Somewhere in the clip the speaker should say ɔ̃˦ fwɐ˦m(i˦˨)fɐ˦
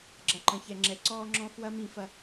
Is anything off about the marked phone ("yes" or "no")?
yes